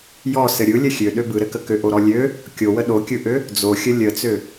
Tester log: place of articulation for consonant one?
palatal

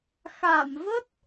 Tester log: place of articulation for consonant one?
velar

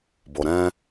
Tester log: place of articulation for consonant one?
labial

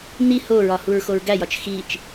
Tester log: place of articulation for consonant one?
alveolar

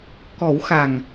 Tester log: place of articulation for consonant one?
velar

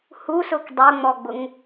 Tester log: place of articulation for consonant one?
glottal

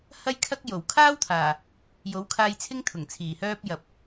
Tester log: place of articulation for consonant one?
glottal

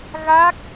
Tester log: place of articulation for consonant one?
velar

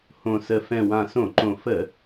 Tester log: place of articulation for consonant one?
glottal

